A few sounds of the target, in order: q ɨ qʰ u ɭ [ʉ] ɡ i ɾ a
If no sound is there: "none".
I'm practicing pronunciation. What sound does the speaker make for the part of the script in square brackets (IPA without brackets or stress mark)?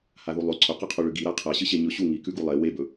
ʉ